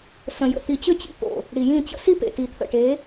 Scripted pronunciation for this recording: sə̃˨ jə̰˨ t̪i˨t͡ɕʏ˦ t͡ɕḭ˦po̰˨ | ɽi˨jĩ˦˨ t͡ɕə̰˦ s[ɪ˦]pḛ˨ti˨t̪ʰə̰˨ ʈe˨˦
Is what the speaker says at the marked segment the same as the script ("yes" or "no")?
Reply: no